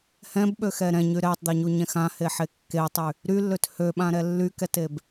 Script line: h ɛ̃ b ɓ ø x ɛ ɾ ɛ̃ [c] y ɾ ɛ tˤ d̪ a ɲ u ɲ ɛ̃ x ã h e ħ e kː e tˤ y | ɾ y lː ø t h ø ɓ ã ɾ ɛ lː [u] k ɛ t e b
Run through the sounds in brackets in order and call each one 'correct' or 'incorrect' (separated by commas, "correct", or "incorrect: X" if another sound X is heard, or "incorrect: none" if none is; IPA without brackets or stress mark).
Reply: incorrect: ɲ, incorrect: y